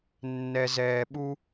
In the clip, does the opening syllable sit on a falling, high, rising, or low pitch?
low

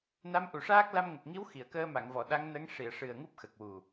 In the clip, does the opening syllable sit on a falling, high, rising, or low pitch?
rising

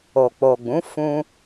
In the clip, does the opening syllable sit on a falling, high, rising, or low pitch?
low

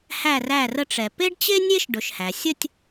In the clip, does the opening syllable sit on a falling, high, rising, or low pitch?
falling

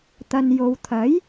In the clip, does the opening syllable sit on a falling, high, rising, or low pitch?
low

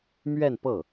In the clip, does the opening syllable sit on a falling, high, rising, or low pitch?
falling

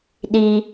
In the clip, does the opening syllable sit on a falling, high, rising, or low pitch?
high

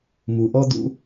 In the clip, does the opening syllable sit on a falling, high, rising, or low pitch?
low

